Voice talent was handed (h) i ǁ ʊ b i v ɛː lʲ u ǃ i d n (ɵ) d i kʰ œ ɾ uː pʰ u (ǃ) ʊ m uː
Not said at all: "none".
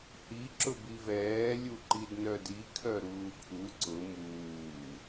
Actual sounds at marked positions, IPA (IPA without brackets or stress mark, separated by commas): h, œ, ǀ